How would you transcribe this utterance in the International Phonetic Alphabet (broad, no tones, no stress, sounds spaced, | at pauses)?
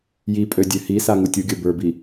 j i pʼ ø dʲ ø h i s a ŋ u tʲ u ɡʲ ə˞ b ə˞ b i